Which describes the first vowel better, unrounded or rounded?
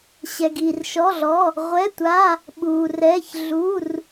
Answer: unrounded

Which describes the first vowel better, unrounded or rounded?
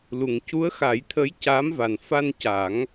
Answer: rounded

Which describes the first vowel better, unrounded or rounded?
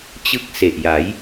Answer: unrounded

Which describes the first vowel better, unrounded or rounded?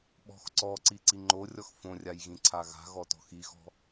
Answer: rounded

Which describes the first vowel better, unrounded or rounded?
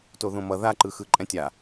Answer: rounded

